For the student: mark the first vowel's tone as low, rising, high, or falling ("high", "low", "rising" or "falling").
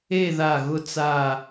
falling